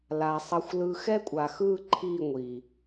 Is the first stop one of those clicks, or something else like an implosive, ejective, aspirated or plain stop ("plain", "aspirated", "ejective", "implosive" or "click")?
ejective